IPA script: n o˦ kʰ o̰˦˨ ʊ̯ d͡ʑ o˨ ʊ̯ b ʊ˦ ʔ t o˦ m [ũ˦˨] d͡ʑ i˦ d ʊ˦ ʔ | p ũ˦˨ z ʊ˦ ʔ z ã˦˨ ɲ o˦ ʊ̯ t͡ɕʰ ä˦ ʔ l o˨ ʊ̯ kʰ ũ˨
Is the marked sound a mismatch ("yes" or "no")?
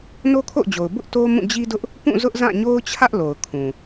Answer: no